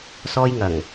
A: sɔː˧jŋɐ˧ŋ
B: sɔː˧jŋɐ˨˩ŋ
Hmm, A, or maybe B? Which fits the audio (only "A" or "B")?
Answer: B